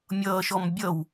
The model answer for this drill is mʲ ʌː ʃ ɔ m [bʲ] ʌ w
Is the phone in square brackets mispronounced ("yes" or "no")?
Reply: no